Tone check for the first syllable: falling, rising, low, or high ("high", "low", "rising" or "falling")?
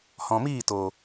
low